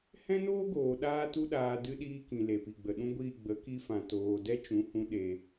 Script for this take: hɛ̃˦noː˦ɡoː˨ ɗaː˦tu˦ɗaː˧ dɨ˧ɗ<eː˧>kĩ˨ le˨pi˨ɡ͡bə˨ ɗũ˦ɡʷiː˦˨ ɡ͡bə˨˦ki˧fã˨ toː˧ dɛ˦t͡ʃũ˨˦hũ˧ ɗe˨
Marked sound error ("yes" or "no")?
yes